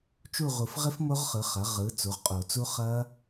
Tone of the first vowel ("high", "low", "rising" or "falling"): falling